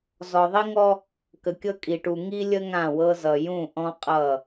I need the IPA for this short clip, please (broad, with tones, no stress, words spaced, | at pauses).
zɔ˨ðˤi˦ŋɔ˦ | kə˨kʲɤ˦ kʼi˨ʈu˨ ŋi˦lʲə˦ ŋã˦˨wɤ˦zʌ˨ jũ˦˨ʔɔ̃˦qʼʌ˦˨